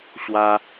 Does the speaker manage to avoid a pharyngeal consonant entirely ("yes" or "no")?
yes